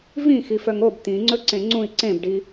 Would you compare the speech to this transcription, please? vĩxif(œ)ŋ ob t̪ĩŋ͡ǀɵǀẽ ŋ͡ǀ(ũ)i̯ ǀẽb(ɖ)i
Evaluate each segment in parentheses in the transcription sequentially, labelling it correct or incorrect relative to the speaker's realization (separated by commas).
correct, correct, correct